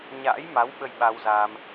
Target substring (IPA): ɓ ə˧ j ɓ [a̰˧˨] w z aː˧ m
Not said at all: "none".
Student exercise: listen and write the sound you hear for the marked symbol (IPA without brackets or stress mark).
a˧